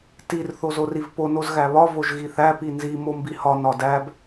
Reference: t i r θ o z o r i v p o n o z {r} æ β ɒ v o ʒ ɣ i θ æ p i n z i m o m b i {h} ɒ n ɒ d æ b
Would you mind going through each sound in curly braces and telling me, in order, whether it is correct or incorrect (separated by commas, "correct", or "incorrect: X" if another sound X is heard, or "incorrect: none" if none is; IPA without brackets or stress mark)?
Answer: incorrect: ɣ, correct